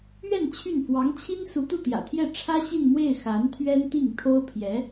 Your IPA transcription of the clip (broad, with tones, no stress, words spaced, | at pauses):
ɥɛ˥˧n t͡ɕʰy˥˩n fwɑ˧˥ŋt͡ɕʰi˥n su˧˥t̪u˥˩t̪jä̰˨˩t̪ʰjɛ˥˩ ʈ͡ʂʰä˥ɕi˥˧nmwe˥˩ɪ̯ xa˧˥nt̪ʰɥɛ˥nt̪i˥˩ŋt̪ʰo˥ʊ̯ pʰjɛ˧˥